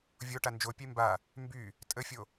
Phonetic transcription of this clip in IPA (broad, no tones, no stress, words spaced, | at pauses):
vʲoʈa nd͡ʒopʲe mba | mby | tʼəfʲo